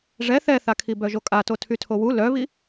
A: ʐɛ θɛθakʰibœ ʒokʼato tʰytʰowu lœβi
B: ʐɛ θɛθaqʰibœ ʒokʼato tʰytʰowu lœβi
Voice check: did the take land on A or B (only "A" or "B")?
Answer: A